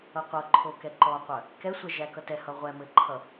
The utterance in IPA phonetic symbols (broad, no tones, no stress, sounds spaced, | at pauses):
ʌ qʷ ʌ ǃʰ o k ɛ ǃ ɔ qʷ œ | k ɛ sʷ ɛ ʒ æ k ʌ t ɛ h ʌ ʁʷ ɛ m ɘ ǃʰ ʌ